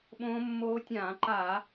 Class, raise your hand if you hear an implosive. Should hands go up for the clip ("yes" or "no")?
yes